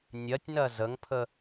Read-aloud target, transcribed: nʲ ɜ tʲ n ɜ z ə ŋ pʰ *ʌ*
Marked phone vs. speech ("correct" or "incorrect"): incorrect